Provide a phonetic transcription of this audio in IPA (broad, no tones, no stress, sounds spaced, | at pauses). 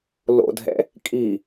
l o̰ dʱ ɛ̰ | kʼ i